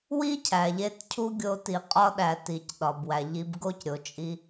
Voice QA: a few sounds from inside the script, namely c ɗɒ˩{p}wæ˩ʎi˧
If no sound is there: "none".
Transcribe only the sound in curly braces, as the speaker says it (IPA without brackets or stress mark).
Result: b